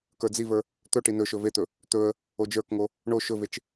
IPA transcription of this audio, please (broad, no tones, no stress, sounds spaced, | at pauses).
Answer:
k ə˞ d͡z i v ə˞ | t̪ ɵ ʈ i n ɵ ʃ ɵ v e t̪ ɵ | t̪ ɵ ə̯ | o d͡ʒ ə˞ k ŋ o | ɳ o ʃ ɵ v e t͡ʃ